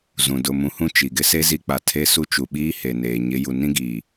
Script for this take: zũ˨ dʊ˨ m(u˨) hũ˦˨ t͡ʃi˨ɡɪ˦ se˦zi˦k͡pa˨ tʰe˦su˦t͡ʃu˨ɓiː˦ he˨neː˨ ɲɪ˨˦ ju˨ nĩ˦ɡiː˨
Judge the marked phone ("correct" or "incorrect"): incorrect